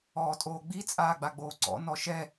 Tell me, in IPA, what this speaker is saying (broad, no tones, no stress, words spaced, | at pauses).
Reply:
ɔːtʼoːɡ͡bi t͡sʼaːɡ͡baɡ͡boːǀɔ̰ nɔʃɛ